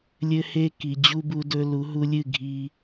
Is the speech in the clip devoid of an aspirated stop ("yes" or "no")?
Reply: yes